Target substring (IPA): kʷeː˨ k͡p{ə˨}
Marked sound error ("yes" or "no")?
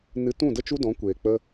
yes